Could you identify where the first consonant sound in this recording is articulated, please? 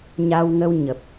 palatal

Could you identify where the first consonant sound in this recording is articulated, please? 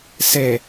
alveolar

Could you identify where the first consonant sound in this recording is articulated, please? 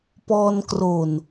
labial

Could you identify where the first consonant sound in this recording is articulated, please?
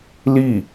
alveolar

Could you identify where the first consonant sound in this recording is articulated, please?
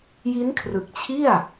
palatal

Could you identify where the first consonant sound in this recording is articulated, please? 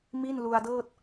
labial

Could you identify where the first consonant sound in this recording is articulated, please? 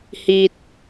glottal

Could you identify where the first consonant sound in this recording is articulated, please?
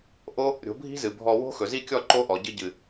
glottal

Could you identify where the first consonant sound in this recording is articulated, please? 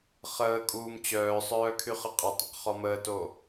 uvular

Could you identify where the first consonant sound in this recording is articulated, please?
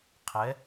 uvular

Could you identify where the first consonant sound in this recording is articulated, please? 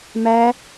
labial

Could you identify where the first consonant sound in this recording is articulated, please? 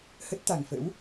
glottal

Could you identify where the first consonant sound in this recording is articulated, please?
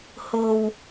glottal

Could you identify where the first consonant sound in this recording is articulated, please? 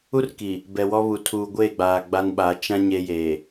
alveolar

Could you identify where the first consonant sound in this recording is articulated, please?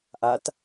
glottal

